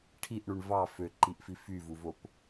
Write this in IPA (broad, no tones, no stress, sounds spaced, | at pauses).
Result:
ʈʰ i ʔ ɳ u ɳ v ɑ f ø ǃ i ʔ f i f y v u v o p